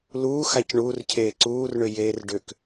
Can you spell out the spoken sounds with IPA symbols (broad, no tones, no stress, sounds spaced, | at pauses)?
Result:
l uː x a c ɳ uː r cʰ eː ǀ uː r ɳ ʏ j eː r ɖ ʏ k